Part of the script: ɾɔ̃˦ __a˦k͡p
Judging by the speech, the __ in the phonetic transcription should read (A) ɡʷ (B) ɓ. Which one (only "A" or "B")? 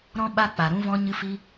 B